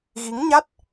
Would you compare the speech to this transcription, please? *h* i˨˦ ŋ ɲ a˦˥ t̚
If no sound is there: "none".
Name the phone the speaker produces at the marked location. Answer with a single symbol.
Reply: ɣ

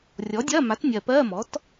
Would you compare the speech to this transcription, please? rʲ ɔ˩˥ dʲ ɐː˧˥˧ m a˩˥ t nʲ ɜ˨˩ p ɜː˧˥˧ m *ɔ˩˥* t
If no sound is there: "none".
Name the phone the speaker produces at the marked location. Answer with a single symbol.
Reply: ɔ˩˥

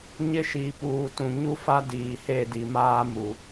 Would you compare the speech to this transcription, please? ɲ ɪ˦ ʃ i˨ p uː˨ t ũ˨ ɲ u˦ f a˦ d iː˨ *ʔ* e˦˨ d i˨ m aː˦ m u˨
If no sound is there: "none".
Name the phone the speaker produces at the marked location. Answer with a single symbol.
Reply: h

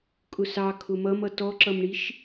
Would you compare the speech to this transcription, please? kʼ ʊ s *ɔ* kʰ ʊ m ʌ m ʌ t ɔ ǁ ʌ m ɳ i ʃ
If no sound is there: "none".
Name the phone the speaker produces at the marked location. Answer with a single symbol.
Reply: ɑ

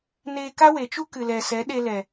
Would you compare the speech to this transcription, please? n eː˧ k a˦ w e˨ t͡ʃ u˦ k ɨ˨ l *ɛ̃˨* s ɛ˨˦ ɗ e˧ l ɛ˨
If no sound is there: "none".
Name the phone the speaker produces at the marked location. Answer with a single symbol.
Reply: ɛ˨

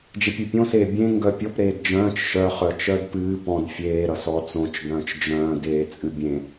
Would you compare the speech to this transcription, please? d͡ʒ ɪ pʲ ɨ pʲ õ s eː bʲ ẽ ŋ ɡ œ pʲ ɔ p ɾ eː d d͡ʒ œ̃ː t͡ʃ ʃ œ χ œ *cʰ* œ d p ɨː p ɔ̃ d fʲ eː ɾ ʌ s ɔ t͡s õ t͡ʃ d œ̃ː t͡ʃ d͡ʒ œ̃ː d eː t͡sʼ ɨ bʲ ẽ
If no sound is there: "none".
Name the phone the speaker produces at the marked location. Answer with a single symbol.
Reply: t͡ʃ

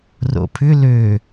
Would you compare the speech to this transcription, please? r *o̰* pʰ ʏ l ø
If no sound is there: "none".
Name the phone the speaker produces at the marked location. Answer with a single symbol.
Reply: o̰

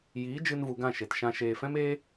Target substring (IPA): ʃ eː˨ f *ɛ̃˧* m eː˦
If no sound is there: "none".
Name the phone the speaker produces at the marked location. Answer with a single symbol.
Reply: ɛ̃˦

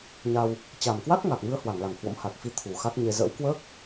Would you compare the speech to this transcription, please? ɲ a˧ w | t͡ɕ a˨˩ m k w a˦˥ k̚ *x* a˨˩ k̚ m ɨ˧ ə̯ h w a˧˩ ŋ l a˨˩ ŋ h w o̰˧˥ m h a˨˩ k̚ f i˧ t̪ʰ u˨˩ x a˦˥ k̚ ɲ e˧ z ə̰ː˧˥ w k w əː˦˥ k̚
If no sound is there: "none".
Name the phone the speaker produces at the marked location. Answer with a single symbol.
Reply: ŋ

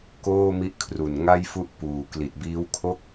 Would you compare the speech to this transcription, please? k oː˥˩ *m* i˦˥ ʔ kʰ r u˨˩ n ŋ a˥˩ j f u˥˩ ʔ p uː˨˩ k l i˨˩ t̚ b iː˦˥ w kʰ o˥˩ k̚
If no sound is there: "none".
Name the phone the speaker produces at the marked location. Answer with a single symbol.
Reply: m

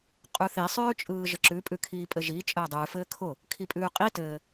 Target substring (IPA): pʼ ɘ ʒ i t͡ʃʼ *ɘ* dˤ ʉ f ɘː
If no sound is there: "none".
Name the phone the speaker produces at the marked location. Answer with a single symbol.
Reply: ɘː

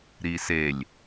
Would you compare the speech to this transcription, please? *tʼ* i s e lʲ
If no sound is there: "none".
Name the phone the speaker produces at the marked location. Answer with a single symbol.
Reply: ɾ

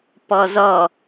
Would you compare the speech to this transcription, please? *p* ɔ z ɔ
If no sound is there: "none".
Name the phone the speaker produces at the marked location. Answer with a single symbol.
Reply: p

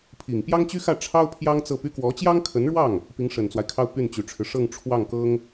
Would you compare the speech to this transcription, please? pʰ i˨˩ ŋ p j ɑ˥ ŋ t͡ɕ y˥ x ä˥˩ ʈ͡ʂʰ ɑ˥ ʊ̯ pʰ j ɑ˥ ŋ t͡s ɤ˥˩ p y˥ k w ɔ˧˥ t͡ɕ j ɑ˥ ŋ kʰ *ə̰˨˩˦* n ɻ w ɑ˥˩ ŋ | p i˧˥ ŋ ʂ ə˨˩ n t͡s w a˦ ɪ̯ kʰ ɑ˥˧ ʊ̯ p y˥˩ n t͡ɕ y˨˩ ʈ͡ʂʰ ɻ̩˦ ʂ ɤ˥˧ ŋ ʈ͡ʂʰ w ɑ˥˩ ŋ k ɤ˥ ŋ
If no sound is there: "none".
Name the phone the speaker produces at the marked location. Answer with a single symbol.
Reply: ə˧˥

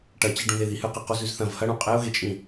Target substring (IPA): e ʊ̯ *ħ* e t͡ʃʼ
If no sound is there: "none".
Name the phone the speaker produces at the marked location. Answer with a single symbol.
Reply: ɣ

